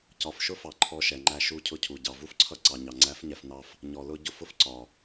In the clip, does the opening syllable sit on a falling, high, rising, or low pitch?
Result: low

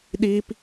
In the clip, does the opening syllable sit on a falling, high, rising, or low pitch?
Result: high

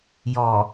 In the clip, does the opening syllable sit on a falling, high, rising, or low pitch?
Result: low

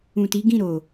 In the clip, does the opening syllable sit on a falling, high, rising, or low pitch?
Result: low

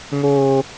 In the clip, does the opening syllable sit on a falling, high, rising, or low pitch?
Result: high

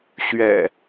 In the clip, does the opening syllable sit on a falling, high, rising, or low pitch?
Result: low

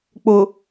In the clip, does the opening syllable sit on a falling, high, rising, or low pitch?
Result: low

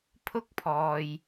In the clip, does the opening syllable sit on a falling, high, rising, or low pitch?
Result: high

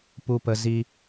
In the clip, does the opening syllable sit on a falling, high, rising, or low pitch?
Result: low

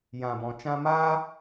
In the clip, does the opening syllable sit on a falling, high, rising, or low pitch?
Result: low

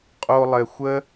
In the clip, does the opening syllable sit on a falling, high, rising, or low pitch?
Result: low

